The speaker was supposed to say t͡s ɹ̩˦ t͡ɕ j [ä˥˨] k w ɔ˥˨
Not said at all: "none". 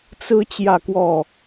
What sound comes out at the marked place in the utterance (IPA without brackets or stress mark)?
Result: ä˥˨